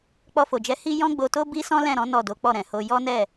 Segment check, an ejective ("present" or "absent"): absent